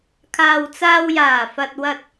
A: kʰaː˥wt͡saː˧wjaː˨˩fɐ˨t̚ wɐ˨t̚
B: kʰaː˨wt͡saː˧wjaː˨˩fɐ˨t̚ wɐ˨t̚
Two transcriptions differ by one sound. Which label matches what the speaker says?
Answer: B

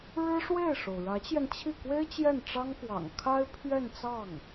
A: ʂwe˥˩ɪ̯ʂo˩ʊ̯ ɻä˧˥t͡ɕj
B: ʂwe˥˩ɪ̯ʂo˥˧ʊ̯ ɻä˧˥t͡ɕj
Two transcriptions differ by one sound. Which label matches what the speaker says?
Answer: A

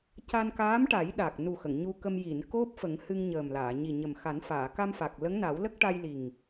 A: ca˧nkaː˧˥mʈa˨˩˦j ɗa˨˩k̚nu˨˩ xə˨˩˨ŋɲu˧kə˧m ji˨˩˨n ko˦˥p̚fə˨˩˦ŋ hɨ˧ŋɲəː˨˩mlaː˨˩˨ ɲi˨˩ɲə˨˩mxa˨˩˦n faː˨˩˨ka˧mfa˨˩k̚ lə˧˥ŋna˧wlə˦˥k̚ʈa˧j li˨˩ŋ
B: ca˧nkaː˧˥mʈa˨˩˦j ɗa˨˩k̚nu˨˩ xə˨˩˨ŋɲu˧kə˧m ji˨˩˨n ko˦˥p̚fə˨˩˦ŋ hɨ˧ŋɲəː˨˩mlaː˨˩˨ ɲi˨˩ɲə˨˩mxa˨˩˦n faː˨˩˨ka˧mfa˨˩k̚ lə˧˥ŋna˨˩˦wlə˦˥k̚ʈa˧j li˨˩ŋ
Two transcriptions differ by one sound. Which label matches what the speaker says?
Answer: B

